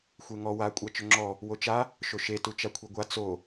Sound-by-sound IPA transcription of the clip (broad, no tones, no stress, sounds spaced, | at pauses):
xʷ e ŋ ɔ w a kʷʼ a t͡ʃ ʏ ŋ͡ǁ ɔ | w o t͡ʃ a | ʃ o ʃ e t u t͡ʃ a kʷʰ i ɡʷ a t͡s o